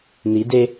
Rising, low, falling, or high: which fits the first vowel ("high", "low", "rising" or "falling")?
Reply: rising